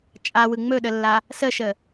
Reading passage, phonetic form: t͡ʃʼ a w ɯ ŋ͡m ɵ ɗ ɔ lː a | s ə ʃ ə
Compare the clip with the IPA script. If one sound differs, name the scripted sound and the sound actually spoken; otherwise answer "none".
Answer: ɔ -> ə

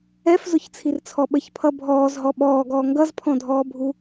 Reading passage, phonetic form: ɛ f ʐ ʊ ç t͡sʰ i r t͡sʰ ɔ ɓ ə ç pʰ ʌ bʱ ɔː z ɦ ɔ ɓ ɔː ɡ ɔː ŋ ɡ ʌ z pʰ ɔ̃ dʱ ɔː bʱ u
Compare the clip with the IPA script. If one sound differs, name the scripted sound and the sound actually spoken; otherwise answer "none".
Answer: ʐ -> z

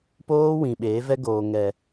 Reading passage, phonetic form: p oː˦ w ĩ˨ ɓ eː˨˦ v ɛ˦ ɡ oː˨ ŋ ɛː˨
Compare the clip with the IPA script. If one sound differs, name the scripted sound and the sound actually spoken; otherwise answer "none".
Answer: ɛː˨ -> ɛ˨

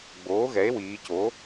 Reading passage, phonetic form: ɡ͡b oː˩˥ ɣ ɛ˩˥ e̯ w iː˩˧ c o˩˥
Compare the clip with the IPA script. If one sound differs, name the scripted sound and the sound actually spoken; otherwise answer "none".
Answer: none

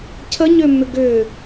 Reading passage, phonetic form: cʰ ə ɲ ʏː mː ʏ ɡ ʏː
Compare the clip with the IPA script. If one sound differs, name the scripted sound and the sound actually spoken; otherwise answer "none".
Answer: none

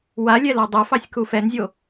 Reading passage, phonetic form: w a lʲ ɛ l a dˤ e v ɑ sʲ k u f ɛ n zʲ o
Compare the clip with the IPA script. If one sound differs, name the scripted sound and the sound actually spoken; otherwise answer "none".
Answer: v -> f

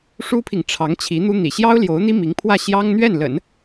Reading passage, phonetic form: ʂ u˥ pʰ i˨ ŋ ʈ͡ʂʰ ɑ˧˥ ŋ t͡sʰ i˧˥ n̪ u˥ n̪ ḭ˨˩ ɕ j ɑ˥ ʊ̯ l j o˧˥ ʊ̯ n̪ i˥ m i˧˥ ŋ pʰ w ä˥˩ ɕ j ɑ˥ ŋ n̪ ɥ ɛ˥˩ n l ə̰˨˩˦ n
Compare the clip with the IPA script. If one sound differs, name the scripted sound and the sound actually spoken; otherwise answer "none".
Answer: t͡sʰ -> t͡ɕʰ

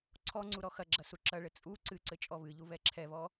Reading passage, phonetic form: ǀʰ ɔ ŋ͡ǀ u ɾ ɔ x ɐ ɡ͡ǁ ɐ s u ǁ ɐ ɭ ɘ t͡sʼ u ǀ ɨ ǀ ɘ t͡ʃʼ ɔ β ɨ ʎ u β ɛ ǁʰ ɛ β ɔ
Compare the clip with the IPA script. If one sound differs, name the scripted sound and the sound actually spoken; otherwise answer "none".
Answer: none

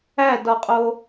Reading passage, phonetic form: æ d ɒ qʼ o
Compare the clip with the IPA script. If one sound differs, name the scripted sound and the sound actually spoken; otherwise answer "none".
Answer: none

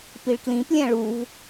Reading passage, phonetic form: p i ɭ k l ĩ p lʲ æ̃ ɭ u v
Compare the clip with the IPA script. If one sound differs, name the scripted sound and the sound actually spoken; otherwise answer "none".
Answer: none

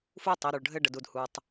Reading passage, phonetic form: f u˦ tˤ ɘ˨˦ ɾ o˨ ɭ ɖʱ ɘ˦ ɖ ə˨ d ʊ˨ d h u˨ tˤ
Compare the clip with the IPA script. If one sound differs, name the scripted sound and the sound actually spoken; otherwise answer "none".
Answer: ʊ˨ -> u˨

